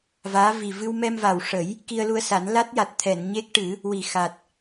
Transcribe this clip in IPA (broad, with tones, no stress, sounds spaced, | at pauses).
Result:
v aː˧˥ v i˨˩ v ɨ˧ w m ɛ˧ m v a˨˩ w ʂ ə˨˩˦ j | k i˧ ə̯ l u˧ ə̯ s a˨˩˦ n l a˦˥ t̚ j a˨˩ t̚ t̪ʰ ɛ˨˩˨ n ɲ e˦˥ k̚ ʈ ɨ˨˩˦ | w i˨˩ x a˨˩ t̚